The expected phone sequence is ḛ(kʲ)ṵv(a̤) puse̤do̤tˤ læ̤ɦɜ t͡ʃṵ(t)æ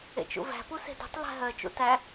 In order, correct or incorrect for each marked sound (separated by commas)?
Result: incorrect, incorrect, correct